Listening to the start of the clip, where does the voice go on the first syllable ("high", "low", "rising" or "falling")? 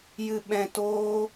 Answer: low